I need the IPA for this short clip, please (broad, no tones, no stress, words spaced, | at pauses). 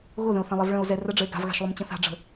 ɣʊðə̃o̯θɛ̃lˠɛv ɭə̃o̯zɛ rəɖ͡ʐəe̯ ɡa̤vɣa̤ʃlˠʊmt͡ɕə̃ θa̤ɖ͡ʐə̤